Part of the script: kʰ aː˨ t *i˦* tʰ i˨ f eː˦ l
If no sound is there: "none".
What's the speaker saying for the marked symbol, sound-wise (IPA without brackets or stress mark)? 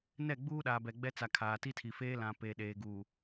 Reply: i˦